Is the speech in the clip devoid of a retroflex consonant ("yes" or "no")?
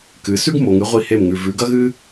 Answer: yes